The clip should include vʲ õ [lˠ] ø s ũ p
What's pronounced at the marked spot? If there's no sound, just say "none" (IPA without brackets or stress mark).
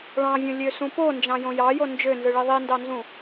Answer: lʲ